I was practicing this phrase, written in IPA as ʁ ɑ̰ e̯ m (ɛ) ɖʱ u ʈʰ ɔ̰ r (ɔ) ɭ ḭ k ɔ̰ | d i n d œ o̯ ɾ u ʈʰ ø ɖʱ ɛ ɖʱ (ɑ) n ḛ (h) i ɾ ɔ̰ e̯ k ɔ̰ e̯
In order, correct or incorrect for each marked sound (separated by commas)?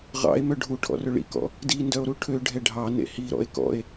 incorrect, incorrect, correct, correct